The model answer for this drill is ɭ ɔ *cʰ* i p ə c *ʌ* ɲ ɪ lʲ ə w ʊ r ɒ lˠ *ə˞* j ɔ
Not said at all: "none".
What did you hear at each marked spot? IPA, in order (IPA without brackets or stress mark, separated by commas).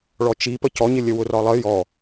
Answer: t͡ʃ, ɔ, ə